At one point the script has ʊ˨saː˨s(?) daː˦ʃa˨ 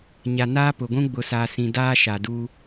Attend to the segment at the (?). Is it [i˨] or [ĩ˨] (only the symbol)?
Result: ĩ˨